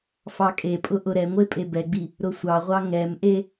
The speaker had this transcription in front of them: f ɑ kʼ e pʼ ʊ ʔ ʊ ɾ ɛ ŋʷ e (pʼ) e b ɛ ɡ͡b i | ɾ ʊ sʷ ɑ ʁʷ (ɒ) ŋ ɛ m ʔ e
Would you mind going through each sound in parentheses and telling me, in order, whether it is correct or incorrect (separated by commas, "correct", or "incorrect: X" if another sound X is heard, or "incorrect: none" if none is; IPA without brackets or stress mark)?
correct, incorrect: ɑ